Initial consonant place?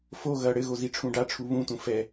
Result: labial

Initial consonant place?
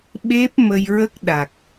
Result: labial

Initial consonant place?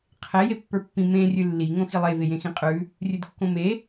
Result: uvular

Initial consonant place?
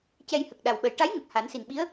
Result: palatal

